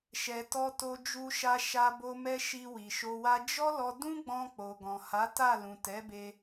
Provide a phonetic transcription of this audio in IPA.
ʃɛ˨tɔ˧ to˧d͡ʒu˧ʃa˧ ʃa˧bo˧ mɛ˦ ʃi˧wi˨ʃo˧ wa˧ d͡ʒɔ˦lɔ˧ dũ˦ɡ͡bɔ̃˧ k͡po˨ɡɔ̃˨ ha˨˦ta˦˨lũ˨ tɛ˨˦be˧

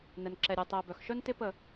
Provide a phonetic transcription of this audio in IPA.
nɛ˨nǁɛ˨ ɾʲe˨tˤɛ˨ bœ˨xʃœ˦ntɪ˦ pə˦˨

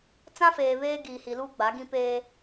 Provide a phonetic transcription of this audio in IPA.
t͡sã˦feː˨ βeː˦ɡiː˨hi˨luː˦ ɡ͡ba˨˦ɡĩ˦peː˦

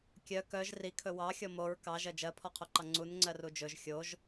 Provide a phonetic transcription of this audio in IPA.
kʲœ kœʒ rikʰɵ wɑxʲɔ moɹ kɑʒɜ d͡ʒɜpʰɔqʰoǃɑ ŋ͡ǀunŋ͡ǀɜru d͡ʒɵʒ xʲoʒ

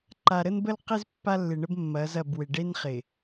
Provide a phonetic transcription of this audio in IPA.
ǃa˨ɾə˦nbə˦lqɪ˦z pːa˦lːɪ˨ɳə˦b mːɐ˨˦zɐ˦˨bwɪ˨ ɖe˦nχɪ˨

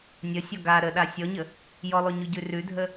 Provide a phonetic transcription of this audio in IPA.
nʲəsʲɔ ɡa ɾəɗa sʲɔɲə | jɔlˠʉɲʉɟʉ rʉdʱə

